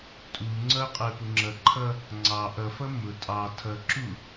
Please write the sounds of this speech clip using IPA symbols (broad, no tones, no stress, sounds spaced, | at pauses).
tʼ u ŋ͡ǀ ʌ qʼ ə˞ p ʊ ŋ͡ǁ ʌ ǃʰ ʌ | ŋ͡ǀ ɑ ʔ ʌ f ʌ m ʊ tʼ ɑ tʰ ʌ ǁ u